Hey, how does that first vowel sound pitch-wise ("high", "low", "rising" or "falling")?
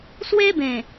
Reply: high